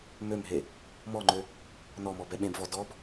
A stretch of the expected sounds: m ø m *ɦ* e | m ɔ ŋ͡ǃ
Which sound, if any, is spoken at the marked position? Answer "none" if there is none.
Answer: ɦ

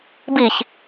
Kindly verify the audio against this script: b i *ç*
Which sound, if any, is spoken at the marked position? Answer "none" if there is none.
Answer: ç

